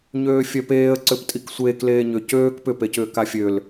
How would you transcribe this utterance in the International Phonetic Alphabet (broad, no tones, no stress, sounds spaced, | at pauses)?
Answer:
ɲ øː fʲ œ p eː ə̯ ǀ ʏ p tʼ i k sʷ eː k l eː ɲ ʏ c øː k p ʏ p e c ʏː k a fʲ ø l